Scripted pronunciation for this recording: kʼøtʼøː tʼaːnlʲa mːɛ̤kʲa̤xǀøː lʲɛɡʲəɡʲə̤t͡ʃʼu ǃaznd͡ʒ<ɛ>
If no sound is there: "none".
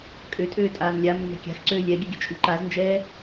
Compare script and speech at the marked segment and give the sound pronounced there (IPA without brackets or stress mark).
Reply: ɛː